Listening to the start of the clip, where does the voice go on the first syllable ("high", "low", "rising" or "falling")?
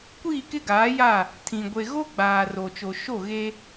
falling